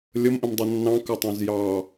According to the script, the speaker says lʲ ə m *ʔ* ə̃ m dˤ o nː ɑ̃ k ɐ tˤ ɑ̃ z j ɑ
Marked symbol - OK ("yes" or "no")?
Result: yes